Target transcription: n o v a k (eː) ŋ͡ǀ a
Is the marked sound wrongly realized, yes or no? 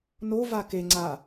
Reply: yes